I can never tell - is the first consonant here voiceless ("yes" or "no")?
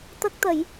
yes